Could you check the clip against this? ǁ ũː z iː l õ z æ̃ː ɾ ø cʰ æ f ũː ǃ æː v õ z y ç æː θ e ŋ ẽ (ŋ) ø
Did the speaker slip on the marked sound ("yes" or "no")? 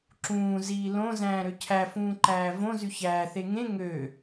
no